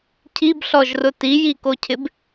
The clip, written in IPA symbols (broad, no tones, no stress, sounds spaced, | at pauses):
cʰ i b ɬ ɔ ʒ r ʊ t i j i k o cʰ ɪ b